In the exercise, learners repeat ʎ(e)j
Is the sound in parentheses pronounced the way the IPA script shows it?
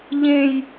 no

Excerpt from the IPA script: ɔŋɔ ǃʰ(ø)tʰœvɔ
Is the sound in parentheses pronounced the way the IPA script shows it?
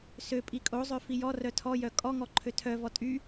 yes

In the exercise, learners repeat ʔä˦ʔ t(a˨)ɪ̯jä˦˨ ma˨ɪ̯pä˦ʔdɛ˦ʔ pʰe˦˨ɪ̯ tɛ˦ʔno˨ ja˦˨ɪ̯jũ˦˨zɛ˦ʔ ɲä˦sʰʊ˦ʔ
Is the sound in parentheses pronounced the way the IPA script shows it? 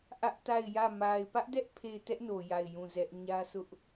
no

